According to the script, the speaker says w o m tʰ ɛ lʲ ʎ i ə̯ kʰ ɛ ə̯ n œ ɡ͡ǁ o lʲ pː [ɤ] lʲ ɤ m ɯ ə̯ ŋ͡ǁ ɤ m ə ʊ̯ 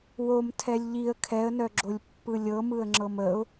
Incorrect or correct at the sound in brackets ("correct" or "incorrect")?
incorrect